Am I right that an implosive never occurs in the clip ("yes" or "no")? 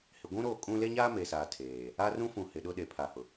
no